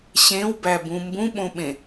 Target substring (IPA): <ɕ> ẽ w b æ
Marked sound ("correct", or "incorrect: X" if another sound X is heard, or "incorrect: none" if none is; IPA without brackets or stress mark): correct